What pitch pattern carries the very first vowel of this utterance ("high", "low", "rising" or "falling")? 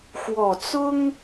low